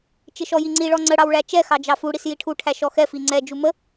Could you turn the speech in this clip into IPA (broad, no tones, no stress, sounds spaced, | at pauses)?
t͡ʃ ɪ ʃ ɔ j i ŋ͡ǀ i ɭ ɔ ŋ͡ǀ ə ɽ ɑ w ɭ æ t͡ʃ ɛ x ɑ d͡ʒ ɑ f u ɽ i s j i ʈʰ u ʈʰ æ ʃ ɔ x ɛ f i ŋ͡ǀ ɛ d͡ʒ u m ə